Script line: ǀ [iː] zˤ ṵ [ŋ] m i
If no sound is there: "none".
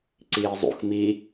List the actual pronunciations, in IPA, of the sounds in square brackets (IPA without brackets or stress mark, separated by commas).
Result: iː, x